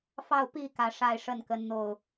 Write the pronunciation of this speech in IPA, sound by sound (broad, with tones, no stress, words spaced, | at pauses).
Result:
fɑ˥˨ʊ̯pi˥˨ kä˨˦ʂa˥˨ɪ̯ ʂə˥˨nkə˨˦n n̪o˥˨ʊ̯